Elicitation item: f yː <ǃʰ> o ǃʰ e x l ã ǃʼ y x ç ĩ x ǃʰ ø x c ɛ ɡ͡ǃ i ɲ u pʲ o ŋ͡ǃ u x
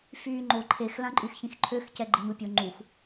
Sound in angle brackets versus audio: incorrect: ŋ͡ǃ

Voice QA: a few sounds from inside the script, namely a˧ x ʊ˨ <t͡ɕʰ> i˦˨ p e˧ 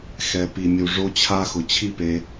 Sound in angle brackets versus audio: correct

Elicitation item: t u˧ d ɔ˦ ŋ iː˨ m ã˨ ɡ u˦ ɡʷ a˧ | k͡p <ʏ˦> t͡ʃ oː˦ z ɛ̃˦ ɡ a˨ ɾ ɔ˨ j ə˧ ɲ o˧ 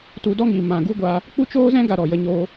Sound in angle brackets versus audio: incorrect: u˦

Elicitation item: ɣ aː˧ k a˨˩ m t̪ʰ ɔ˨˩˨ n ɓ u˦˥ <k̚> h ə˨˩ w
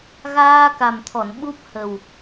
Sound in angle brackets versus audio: incorrect: p̚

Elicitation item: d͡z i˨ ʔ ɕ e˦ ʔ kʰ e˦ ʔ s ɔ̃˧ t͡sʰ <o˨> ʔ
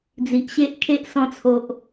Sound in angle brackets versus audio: correct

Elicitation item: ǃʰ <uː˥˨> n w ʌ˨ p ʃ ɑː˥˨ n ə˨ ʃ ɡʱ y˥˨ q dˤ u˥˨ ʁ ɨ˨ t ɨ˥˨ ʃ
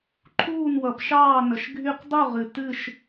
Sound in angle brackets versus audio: correct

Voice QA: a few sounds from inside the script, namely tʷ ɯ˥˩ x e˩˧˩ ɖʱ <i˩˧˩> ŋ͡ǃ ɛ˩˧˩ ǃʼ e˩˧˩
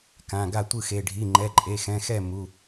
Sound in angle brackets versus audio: correct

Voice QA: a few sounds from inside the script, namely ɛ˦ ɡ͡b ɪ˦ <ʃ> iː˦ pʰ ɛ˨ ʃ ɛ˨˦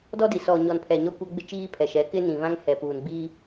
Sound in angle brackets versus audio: incorrect: t͡ʃ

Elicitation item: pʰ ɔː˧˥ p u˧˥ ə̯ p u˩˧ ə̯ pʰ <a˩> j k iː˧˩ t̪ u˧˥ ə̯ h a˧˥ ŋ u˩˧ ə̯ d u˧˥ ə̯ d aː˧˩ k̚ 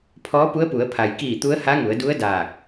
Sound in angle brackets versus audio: correct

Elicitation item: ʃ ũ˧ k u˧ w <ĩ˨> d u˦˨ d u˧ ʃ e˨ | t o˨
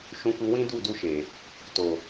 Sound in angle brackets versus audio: incorrect: ĩ˦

